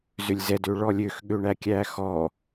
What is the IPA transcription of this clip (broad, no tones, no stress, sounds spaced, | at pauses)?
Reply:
z ø lʲ z ɛ d ø ɭ ɔ lʲ ø x ɠ ø ɳ æ kʲ æ x ɔ